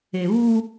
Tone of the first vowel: low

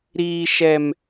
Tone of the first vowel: low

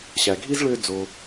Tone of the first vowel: low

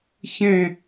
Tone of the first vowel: high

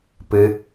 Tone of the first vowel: high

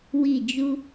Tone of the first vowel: falling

